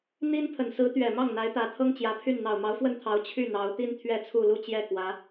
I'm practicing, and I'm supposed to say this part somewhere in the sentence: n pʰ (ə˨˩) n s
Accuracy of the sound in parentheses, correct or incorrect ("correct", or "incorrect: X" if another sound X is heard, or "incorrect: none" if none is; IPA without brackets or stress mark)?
correct